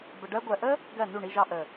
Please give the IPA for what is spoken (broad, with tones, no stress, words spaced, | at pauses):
bə˨ɖɜ˧ɡʷɜ˨ʔə˦ | ɡɜ˦˨ nu˦˨ɳi˧ʒɑ˧ ʔə˨